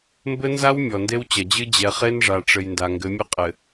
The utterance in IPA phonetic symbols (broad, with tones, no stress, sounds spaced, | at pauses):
m b ɘ˦ n z a˦ w mʲ ɔ˨ n d e˦ w t͡ɕ ɐ˨ d͡ʑ ɨ˦ d͡ʑ ɛ˨ χ e˦ n ʐ a˨ ʈ͡ʂ ɘ˨ j n d a˨ ŋ ɡ ɘ˨˦ mʲ ɘ˦ qʼ ɘ˨